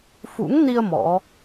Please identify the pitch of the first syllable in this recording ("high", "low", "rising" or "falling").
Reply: rising